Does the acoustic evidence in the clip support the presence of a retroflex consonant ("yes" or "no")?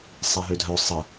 no